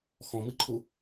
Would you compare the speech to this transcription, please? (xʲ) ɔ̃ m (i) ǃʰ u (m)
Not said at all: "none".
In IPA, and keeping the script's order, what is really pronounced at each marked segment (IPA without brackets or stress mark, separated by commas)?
x, i, none